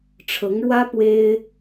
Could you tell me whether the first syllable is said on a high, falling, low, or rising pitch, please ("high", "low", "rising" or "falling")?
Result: rising